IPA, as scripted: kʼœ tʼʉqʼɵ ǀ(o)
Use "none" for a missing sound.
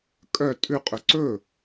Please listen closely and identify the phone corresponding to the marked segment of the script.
ɵ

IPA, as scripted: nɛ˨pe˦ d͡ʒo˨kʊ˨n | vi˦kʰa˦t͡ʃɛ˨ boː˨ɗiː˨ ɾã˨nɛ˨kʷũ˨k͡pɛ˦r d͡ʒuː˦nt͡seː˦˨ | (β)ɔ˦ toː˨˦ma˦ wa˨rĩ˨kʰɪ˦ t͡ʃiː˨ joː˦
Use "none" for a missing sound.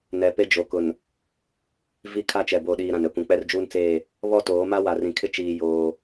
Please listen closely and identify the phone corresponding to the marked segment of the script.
β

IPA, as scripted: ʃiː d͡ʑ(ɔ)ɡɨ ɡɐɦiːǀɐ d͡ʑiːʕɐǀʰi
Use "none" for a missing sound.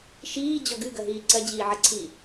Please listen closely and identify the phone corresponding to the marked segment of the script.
ɔ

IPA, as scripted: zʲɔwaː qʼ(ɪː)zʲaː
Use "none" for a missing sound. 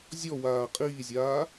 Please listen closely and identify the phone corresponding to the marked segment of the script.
iː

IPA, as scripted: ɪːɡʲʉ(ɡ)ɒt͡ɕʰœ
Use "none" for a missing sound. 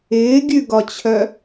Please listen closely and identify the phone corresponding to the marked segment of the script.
ɡ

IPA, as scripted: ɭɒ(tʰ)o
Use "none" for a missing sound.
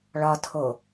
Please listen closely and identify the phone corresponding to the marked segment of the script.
tʰ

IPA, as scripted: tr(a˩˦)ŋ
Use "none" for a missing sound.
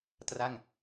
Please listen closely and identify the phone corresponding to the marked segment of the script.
a˥˩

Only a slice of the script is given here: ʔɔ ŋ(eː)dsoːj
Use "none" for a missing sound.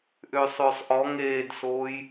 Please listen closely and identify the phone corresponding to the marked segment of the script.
eː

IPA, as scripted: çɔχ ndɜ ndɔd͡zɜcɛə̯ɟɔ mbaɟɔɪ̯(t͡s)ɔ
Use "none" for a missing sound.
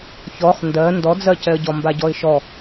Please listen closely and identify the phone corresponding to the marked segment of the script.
ʃ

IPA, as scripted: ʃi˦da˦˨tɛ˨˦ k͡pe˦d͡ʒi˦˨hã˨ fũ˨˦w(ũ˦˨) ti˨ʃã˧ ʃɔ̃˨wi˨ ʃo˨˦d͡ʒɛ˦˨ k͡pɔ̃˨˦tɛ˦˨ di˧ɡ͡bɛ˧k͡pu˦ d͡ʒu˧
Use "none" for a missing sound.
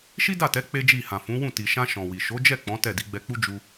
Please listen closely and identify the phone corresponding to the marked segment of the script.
ũ˦˨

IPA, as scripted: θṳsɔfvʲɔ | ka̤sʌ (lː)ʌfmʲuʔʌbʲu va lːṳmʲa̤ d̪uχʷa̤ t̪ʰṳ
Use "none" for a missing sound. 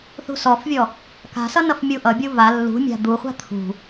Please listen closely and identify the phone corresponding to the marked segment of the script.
n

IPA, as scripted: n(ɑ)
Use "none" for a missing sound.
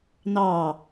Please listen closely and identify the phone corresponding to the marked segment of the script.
ɑ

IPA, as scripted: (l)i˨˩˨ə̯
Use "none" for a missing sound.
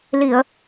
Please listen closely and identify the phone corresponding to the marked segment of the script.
l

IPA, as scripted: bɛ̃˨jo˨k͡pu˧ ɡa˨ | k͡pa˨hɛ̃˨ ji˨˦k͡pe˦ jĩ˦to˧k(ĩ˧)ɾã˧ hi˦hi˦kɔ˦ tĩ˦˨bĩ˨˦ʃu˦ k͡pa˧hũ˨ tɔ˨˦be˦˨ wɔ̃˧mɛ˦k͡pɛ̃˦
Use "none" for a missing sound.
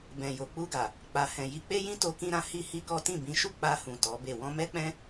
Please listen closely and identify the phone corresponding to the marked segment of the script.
ĩ˧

